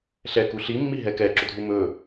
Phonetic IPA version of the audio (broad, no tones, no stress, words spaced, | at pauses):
ɬɛ kuɬimːi ɦɛkɛǁɵdʱu mɵ